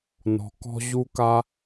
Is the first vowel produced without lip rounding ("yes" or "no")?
no